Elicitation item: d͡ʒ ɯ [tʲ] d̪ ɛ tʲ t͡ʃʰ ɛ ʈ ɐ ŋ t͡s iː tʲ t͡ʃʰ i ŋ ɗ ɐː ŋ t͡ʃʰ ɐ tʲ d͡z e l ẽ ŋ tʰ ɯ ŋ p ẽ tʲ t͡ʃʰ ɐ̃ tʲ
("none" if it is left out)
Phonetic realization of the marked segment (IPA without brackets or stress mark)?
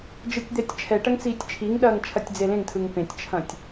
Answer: tʲ